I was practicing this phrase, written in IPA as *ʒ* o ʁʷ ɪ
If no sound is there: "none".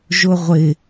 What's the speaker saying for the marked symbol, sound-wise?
ʒ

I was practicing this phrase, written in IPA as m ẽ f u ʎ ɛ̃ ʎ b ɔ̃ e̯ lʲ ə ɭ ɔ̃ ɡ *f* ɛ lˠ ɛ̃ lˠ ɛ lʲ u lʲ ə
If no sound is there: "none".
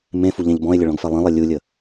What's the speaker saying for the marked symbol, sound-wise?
f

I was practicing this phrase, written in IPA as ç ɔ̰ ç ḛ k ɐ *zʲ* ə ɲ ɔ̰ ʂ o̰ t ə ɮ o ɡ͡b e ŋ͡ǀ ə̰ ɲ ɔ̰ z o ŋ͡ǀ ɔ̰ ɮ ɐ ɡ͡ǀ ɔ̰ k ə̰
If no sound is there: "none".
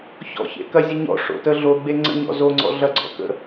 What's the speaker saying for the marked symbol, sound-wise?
zʲ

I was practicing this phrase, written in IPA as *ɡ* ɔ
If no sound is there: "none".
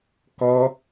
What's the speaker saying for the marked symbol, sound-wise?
k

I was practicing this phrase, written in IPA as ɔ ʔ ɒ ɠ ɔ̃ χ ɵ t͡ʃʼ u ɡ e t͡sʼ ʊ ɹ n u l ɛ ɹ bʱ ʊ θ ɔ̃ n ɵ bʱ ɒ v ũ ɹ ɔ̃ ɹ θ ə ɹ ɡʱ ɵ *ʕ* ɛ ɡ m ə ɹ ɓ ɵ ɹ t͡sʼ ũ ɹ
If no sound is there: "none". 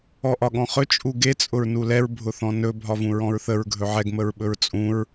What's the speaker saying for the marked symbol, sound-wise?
ʕ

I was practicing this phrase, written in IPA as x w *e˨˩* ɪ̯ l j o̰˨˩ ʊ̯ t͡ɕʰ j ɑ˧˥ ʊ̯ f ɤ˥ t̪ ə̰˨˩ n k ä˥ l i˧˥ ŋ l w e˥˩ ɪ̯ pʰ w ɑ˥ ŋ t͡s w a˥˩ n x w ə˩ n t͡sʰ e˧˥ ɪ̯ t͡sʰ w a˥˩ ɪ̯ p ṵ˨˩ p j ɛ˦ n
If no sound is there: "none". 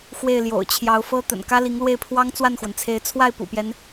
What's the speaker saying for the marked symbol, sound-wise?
e˥˩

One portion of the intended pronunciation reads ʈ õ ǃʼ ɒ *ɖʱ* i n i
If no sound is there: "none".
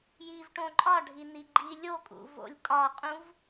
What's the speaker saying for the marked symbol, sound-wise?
ɖʱ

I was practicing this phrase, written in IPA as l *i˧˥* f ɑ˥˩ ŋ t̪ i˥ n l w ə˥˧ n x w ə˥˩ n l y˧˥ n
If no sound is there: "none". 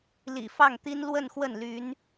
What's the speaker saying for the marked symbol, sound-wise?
ḭ˨˩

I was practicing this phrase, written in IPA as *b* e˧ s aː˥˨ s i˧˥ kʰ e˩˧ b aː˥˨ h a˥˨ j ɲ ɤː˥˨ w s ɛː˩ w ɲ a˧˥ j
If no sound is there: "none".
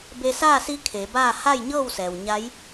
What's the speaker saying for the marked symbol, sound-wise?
b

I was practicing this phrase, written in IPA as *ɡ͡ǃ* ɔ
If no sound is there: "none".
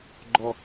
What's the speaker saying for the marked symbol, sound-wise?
ɡ͡ǃ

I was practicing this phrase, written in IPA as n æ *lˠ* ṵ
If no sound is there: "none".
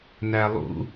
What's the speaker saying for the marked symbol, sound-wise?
lˠ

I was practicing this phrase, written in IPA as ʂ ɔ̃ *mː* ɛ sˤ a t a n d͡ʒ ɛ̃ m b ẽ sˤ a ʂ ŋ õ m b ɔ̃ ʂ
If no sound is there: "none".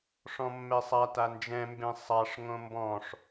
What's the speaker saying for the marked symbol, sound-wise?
mː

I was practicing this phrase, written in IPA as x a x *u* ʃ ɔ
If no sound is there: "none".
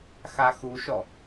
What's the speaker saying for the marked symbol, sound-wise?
u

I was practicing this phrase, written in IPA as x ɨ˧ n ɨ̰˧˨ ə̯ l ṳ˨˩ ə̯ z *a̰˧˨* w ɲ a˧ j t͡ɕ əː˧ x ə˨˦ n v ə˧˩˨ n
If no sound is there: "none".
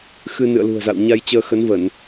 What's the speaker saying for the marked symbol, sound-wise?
a̰˧˨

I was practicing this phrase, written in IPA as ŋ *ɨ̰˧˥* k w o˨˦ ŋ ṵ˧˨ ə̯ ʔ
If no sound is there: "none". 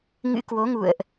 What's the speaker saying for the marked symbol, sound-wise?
ɨ̰˧˥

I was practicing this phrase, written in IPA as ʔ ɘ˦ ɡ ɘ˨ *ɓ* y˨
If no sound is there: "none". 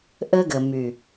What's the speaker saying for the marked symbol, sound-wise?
m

